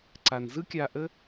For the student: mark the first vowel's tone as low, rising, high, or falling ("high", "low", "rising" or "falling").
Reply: low